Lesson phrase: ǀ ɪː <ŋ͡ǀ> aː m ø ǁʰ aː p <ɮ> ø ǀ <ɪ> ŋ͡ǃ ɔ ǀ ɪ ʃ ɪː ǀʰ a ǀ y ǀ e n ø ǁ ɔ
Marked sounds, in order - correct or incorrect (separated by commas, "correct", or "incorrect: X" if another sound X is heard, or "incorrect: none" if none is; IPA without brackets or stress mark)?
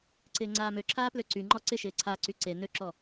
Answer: correct, incorrect: l, incorrect: y